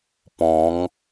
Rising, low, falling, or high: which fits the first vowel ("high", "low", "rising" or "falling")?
rising